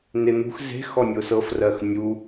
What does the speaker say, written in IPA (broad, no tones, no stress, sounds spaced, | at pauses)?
n e n̪ ṳ x z e̤ x ɔ nʲ ʊ s ɤ f r ɜ x nʲ u